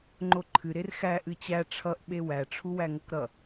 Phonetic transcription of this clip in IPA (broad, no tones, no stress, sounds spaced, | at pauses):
ŋ͡ǃ o ǃʰ ɨ ɾ e r x æ ʔ ɨ t͡ɕ æ ʈ͡ʂʰ ʌ ʔ ɓ e w æ ʈ͡ʂʰ u w æ ŋ ʌ k ɾ ʌ